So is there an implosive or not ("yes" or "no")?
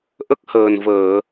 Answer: no